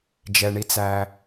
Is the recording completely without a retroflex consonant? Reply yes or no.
no